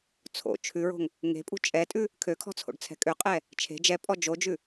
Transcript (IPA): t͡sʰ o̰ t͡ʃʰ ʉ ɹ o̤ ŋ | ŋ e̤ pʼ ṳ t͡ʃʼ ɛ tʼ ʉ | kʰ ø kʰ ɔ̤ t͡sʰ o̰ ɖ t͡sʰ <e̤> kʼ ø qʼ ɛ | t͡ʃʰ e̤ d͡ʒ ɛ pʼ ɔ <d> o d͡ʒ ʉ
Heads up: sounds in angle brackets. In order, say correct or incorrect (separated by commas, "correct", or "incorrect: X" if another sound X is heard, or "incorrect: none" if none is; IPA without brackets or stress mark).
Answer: incorrect: ɛ̤, incorrect: d͡ʒ